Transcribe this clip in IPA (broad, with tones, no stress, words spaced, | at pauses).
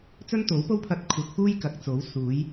t͡sɵ˥nt̪o˨˥wpo˥wpʰɐ˧t̚ kʷʰɐ˨˥k̚fuː˥j kɐ˨k̚t͡so˨˥w suː˨˥j